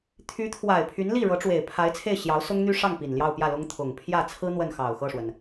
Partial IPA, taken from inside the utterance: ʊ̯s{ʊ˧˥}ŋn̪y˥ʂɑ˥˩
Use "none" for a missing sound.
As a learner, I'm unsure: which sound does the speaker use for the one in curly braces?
ʊ˥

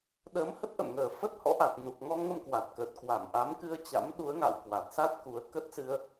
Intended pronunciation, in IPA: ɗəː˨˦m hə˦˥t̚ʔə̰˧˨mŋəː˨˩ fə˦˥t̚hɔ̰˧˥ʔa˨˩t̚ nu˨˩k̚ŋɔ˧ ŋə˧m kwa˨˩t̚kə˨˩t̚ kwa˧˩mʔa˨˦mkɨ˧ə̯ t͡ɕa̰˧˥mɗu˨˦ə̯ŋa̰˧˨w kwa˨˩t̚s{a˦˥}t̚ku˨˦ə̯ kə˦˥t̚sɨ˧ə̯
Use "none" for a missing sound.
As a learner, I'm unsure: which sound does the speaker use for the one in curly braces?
a˦˥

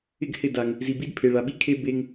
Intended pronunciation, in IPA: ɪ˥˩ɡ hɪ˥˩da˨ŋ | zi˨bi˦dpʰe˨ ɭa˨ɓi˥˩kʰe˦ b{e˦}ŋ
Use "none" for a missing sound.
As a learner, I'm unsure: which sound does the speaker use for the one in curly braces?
e˦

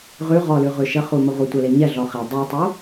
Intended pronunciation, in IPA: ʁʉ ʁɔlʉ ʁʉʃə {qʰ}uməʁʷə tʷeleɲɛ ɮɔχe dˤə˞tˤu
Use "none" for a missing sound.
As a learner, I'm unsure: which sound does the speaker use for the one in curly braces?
χ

